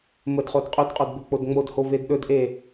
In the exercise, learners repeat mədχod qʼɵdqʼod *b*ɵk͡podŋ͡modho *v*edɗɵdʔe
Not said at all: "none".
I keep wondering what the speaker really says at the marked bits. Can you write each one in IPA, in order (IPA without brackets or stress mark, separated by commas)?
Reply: b, v